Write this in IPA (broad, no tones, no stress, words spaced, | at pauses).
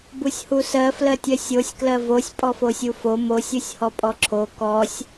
busʲhusɜ flɜtʲɜsʲosʲ klɜvosʲ pʼɔfosʲufo mosʲ usʲhɔpʼɔǁʰo kɔsʲ